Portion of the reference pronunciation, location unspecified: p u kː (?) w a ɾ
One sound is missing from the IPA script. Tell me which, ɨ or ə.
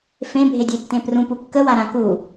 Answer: ə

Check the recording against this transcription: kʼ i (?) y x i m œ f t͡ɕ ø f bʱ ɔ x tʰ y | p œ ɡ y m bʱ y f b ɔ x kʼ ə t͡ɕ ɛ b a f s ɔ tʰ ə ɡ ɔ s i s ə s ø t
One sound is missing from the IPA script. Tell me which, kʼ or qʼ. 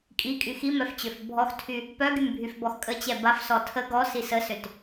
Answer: kʼ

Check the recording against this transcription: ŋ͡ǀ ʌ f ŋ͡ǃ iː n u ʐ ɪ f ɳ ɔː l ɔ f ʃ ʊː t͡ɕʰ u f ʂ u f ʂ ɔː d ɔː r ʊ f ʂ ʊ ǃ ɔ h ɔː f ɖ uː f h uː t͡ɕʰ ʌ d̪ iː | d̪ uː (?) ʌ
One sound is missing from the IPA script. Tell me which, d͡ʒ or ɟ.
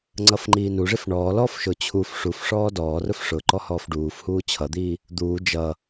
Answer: d͡ʒ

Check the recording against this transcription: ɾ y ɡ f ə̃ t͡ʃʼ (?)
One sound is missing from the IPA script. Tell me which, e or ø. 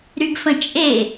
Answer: e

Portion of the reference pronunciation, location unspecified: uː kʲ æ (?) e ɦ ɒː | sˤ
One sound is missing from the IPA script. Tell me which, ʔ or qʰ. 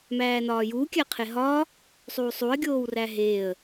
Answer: qʰ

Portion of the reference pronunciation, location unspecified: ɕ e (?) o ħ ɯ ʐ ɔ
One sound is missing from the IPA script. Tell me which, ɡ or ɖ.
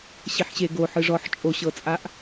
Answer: ɡ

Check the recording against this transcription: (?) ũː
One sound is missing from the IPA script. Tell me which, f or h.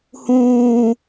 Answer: h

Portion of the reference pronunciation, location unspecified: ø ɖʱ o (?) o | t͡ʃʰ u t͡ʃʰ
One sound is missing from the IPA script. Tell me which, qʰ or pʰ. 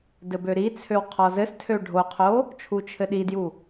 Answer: qʰ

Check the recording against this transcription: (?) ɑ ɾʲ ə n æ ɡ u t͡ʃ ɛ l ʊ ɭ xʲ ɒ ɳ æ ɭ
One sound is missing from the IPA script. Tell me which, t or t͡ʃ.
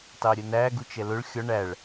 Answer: t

